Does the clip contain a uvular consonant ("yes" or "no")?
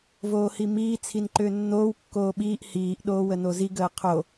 yes